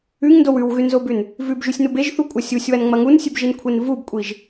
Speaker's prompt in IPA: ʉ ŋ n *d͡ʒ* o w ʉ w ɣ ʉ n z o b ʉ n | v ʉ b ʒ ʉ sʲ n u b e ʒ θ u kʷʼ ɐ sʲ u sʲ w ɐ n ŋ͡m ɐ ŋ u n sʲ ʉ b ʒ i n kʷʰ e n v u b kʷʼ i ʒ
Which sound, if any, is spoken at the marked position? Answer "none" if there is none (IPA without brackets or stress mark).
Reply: d